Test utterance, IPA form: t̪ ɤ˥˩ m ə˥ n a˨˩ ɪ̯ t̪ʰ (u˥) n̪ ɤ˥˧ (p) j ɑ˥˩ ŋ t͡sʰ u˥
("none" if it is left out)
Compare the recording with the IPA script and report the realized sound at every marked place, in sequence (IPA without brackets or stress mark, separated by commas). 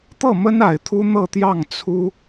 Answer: u˥, t̪